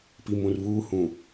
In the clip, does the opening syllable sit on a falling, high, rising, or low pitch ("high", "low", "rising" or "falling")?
low